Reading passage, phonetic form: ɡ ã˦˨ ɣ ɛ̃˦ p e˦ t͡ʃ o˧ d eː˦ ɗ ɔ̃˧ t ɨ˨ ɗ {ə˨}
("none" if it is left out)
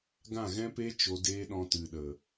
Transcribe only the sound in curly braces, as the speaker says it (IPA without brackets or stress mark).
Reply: ə˨